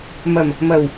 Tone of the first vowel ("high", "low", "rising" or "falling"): low